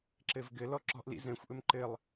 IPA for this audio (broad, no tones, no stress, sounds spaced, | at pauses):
ǁ ɘ v ɡ ɘ l ɔ ǁ ɔ̤ ʔ l ḭ z ɛ̃ xʷ ʔ ɵ m ǃ ɘ lˠ